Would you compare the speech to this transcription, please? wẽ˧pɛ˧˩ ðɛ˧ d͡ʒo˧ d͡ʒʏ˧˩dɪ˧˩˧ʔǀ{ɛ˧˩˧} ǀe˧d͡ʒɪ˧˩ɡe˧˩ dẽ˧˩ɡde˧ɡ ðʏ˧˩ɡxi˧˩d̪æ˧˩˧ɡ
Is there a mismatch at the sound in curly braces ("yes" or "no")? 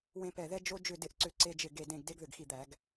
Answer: yes